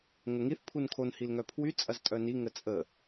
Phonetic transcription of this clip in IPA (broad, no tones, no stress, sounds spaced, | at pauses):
ŋ ə ŋ i θ pʰ u n kʰ o n h i l ŋ œ pʰ w y t͡sʼ ɐ z tʼ œ n i ŋ ə t͡sʼ ə